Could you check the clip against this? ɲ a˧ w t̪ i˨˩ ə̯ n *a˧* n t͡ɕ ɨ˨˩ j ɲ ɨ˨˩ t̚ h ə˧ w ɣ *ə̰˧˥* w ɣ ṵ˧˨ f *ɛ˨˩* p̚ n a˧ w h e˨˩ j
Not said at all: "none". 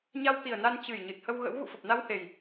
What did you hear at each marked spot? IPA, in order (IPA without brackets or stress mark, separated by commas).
a˧, ə̰˧˥, ə˨˩